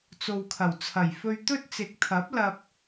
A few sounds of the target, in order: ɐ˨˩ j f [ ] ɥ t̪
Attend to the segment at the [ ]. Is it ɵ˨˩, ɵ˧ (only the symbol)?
ɵ˧